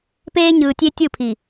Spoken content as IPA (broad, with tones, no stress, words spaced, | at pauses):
peː˦ɲɯː˨tʲe˦ tʲɯ˦˨pʰi˨